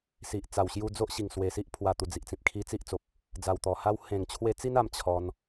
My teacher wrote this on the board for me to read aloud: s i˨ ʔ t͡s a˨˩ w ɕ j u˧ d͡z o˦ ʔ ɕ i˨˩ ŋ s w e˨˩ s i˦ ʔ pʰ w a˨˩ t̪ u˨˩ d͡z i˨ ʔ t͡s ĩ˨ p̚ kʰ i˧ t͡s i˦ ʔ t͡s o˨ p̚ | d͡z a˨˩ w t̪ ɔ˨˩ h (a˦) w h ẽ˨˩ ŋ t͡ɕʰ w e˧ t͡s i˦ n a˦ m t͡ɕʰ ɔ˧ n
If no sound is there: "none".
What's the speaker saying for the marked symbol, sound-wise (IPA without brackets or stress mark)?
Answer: a˦